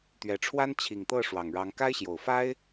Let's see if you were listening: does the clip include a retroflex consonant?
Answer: yes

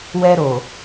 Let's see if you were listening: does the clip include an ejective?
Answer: no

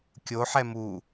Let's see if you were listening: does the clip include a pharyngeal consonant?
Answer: yes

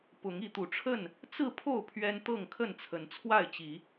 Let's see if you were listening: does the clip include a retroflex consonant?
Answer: yes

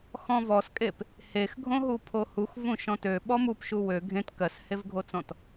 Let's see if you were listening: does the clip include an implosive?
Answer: yes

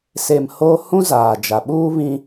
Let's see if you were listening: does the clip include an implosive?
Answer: yes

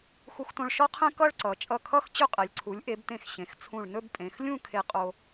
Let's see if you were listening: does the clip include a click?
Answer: yes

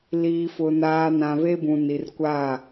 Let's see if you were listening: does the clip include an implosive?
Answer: no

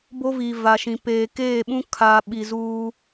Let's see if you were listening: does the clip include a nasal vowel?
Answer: yes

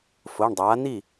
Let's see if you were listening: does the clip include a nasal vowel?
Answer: no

